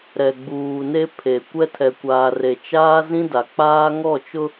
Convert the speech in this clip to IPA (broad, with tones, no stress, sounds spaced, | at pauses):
ɾ ɛ˨ ɡ͡b uː˨ n e˦ pʰ e˨ kʷ ɛ˦ tʰ ɛ˨ kʷ aː˨ r e˨ t͡ʃ aː˦ z ĩ˦ d a˨ k͡p aː˦ ŋ ɔ˦˨ t͡ʃ ʊ˦